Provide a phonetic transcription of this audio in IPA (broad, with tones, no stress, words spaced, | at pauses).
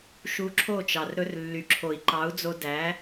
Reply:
ʃu˧ǁʰo˦˨t͡ʃɑ˨r ɾɵ˧rlːy˨ǁʰo˨i̯ ǃɑ˨˦u̯d͡zo˧dæ˨˦